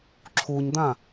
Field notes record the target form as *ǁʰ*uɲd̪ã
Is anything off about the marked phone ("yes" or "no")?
no